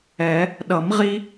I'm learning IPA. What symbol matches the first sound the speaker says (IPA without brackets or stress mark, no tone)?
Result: ɛ